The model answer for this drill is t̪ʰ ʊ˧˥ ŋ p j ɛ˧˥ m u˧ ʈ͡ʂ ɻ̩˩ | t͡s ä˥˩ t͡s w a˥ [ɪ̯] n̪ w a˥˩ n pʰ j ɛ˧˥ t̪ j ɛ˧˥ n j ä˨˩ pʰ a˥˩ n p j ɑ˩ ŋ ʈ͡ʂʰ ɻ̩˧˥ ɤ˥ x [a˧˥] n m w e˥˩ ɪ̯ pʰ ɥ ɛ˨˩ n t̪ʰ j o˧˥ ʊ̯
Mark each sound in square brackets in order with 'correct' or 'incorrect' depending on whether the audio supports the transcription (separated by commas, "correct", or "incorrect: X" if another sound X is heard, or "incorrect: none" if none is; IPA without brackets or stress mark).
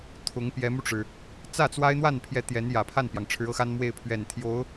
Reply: correct, incorrect: a˥